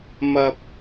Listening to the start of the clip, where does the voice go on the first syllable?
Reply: high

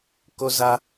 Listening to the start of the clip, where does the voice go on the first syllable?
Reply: high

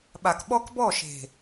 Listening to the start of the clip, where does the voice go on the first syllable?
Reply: low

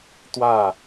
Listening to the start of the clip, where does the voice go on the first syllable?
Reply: falling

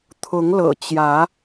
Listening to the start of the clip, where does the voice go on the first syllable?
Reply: rising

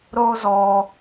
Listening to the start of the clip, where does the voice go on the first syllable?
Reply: high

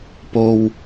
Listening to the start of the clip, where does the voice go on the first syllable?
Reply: low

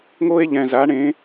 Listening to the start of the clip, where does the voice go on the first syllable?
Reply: high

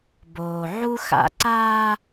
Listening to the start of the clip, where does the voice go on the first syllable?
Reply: low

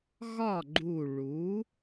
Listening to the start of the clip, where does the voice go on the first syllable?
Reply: falling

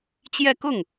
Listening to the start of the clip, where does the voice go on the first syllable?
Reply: falling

